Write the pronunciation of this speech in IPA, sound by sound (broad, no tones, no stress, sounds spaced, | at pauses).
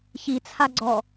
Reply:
ç i t͡sʰ a ɡ͡ǀ ɔ